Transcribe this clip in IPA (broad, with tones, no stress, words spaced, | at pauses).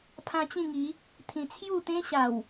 pʰã˦t͡ɕĩ˥˧ŋi˨˦ | t̪ʰĩ˧ t͡sʰju˥˧t̪ẽ˦ɕa˨˩w